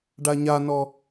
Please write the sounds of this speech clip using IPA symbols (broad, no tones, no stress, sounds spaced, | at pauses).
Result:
ɖ a ɲ a n ɔ